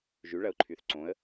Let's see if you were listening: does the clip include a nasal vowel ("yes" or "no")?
yes